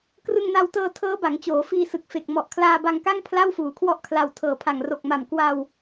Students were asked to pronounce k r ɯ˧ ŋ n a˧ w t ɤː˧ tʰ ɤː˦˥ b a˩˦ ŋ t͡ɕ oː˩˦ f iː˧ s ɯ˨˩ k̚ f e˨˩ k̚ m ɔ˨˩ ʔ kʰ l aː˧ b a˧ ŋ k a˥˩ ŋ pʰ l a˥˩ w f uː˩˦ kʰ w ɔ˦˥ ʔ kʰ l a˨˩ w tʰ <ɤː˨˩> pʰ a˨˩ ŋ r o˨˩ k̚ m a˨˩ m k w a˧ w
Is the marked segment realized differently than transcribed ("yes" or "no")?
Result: no